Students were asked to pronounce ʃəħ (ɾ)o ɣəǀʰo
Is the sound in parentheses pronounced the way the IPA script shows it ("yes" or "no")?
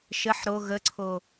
yes